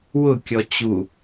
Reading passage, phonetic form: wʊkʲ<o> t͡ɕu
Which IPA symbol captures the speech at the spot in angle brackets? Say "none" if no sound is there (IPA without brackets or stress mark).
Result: ɔ